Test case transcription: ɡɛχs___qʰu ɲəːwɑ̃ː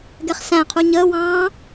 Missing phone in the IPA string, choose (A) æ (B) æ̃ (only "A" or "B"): B